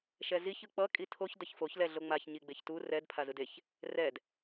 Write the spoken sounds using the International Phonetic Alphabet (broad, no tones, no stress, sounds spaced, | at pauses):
ʃ ɛ z i ç ɯ k͡p ʌ kʼ i tʰ o ç d ʌ ç f o ç l ɛ ɮ o ŋ͡m a ç ɲ i ɡ͡b e ç t u r ɛ d pʰ a z ɯ d e ç | r ɛ d